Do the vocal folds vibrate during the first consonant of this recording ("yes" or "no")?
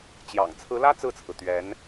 no